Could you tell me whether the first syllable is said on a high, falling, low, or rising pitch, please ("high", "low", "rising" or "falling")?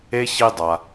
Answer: high